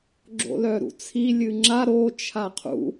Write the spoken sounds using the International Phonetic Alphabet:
ɡ͡ǁ o̰ l œ ɾ ṵ t͡sʰ i lʲ ɨ ŋ͡ǁ a ɾ o t͡ʃʰ a qʰ ṵ

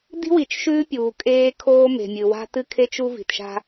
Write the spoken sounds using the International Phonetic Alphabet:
d i̤˦ w i˨ t͡ʃ ʃ ʉː˦ pʲ uː˨ kʼ eː˦ kʰ oː˦ m e̤˨ mʲ ɨ˨ w a̤˦ t ɨ˦ kʰ e˦ t͡ʃ u˦ v i̤˨ t ʃ a̤˦

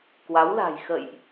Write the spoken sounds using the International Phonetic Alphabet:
k w a˨˦ w l a̤˨˩ j x ə̰˧˨ j ʔ

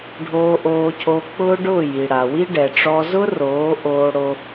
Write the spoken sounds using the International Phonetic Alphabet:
ɖʱ oː˧ ʔ oː˧ cʰ o˧ k͡p ʊː˦ ɖ ʊː˦˨ j i˨ ɽ a˨ w i˦ ɖ ɛ˨ ʈ͡ʂ ɔ˧ z ʊ˦ r oː˨˦ ʔ oː˧ ɽ o˧

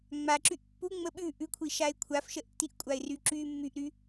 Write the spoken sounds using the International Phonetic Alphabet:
ŋ͡m a ǁ y ʔ pː u ŋ͡m ə ɓ ʉ ʔ ʉ kʷʰ i ʃ a ɪ̯ kʷʰ a f ʃ ə ʔ tː i ʔ kʷʼ a ɪ̯ r y ǁ y mː y ʔ ɾ y

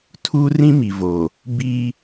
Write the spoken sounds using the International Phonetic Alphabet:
tʰ uː˦ r ĩ˦ m i˨ v o˨ | b i˦

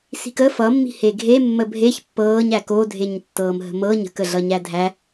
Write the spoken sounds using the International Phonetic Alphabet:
s i̤ k ə f ʌ mː i̤ h e ɡʱ e mː ə bʱ e ç pː ɤː ɲ æ k o dʱ e ɲ tː ɤː m ɦ ə̤ m ɤ ɲ ə̤ k ə ɮ ʌ ɲ æ dʱ æ

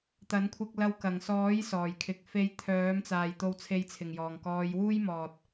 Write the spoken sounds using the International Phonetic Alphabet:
t̪ ɐ˨˥ n kʷʰ ɪ˧ k̚ l ɐ˧ w k ɐ˨˩ ŋ s ɔː˨˥ j s ɔː˨˩ j kʰ ɪ˨ k̚ f e˧ j t̪ʰ œː˨˥ m t͡s aː˨ j t̪ o˧ w t͡sʰ e˧ j t͡sʰ ɪ˨˩ ŋ j ɔː˨˩ ŋ k ɔː˨˧ j w uː˥ j m ɔː˨ t̚

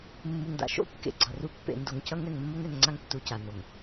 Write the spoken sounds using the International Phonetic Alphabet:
mː u˨ ŋ d a̰˨ ʃ o̰˦ kː ḛ˨ ɡ͡ǀ ʌ˨ r u˦ pː ḛ˨ n d o˨ ŋ c ʌ˦ ŋ ɛ˨ ŋ mː o˦ ŋ ɛ˨ ŋ ŋ͡ǀ a˦ ŋ tː u˨ c a˨ n o˨ ŋ

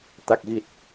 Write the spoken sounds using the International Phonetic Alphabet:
t̪ a˨˩ k̚ ɣ i˨˩ t̚

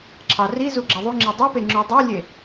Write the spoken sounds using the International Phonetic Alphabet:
ǁʰ ɑ r i z u ɡ͡ǁ ɑ ðˤ u ŋ͡ǁ e dˤ u p e ŋ͡ǁ y dˤ ø lʲ e

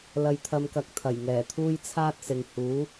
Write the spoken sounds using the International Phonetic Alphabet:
l ɐ˧ j t̪ʰ ɐ˧ m k ɐ˨˥ k̚ t̪ʰ ɐ˨˩ j ŋ ɛː˨˩ t̪ʰ uː˥ j t͡sʰ aː˥ t̚ s ɪ˨ ŋ h uː˨˥

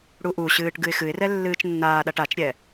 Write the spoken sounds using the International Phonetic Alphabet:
ɽ u ʔ u ɕ ɨː ʈ ɡ ɨ ɪ̯ x ɨ ɪ̯ r ɛ lː ɨː t͡ʃ nː aː ɗ a ʈ a t͡ʃ ɾʲ ɛ

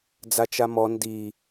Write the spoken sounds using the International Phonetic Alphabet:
d͡z a t͡ʃ a m ɔ n d i

